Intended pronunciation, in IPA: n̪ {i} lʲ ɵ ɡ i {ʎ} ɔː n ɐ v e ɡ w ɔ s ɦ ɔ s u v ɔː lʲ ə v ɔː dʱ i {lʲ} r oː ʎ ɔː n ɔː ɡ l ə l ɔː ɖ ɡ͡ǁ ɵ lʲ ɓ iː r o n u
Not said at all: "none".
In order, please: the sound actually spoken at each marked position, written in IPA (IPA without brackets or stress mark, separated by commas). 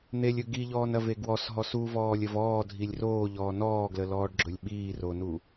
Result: e, ʎ, lʲ